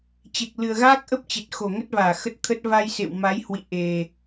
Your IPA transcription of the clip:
t͡ɕe˨˩k̚lɨ˨˩ə̯ɣaː˦˥k̚ʔə˦˥p̚ t͡ɕe˨˩t̚ xo˧˩ŋə˦˥t̚vaː˧˩ xə˦˥t̚t̪ʰə˦˥t̚ va˧jsḛ˧˨wma˨˦jhwḭ˧˨ ʔe˨˩

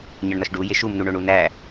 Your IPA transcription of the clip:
ɲɒɳnɒʃɖu jeʃumnu ɳoɳunæ

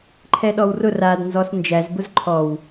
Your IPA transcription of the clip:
ǃʰɛɗɔwrʊ radnzɔs nd͡ʒæzbʊz ǃʰɔw

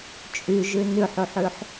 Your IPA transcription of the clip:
t͡ʃʼyʒʉ nʉħuħʉħ

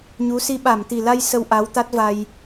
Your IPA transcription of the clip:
ɲu˨˦si˧ ɓa˧˩mt̪i˨˩la˧j sə˧wʔa˨˦wt̪a˦˥t̚va˧j

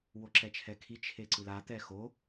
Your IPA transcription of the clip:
woǁɛt͡ʃʰɛkʰi t͡ʃʰeǀɯla t̪ɛxo

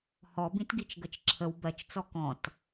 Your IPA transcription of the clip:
hɔbĩtɡit͡ʃ ɡət͡ʃǁʰəw bɜt͡ʃt͡sɔ kɔ̃t

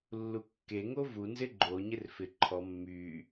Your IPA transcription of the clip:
lːukːe ŋovu nzɪɡ͡ǃo ɲɪrfɪ ǃʰɔ mːy

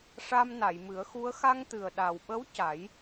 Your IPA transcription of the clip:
ʂa˧mna˨˩˨jmɨ˨˩˦ə̯xu˧˥ə̯ xa˧ŋt̪ɨ˨˩ə̯ɗa˨˩wɓə˧˥w ca˨˩˦j

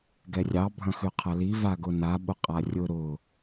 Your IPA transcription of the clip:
ɡɛrʲɑ bʱɐ̃xʉqʰɐli vaɡʊna ɓʊqʼarʲʊ ɾʊ

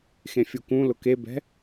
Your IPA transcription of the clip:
xẽfʲukũlʊ kebɛ̤

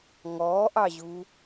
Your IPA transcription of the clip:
ŋɔːʔɑʑu

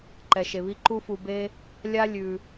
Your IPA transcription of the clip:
ǃɛ˨ʃe˨βi˦ ǃu˦fu˧ be˦ | lʲa˦ lʲʉ˧

